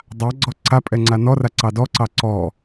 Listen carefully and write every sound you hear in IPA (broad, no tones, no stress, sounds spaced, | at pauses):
dˤ a ɡ͡ǀ ɔ ǀ a pʼ ɛ ŋ͡ǀ a n ɔ r a ǀ ɑ d ɔ ǀ ɑ ǀ ɔ